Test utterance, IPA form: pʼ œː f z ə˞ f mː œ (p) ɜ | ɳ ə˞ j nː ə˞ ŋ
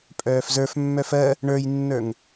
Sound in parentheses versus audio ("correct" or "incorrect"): incorrect